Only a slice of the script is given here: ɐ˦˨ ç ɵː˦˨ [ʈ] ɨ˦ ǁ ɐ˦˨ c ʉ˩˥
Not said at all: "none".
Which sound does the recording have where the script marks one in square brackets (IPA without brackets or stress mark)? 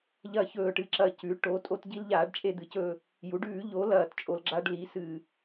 ʈ